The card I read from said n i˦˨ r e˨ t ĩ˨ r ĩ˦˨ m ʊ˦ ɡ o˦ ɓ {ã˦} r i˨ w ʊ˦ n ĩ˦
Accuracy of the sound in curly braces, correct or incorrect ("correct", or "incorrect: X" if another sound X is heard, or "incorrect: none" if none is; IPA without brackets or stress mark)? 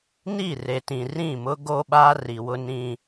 incorrect: a˦